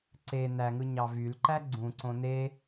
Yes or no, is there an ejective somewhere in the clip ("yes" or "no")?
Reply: no